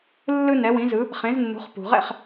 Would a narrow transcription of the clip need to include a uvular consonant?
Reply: yes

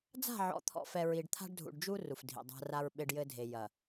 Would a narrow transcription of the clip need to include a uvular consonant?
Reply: no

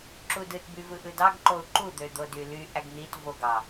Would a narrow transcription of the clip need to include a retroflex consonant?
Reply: no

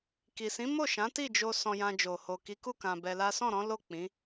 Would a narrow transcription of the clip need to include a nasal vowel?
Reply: yes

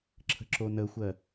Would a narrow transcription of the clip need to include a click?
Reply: yes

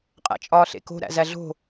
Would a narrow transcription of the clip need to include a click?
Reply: no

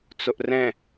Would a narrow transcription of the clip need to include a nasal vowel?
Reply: yes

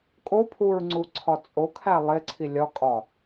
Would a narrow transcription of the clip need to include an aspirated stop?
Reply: yes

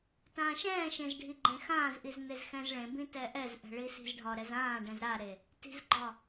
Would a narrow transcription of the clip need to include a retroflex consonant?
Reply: yes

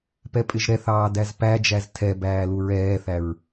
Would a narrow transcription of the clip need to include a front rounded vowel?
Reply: no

